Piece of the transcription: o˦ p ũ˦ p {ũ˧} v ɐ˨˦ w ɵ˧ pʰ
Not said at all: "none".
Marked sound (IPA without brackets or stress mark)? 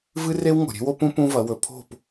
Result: ũ˦